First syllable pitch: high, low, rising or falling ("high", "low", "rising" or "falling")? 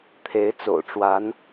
rising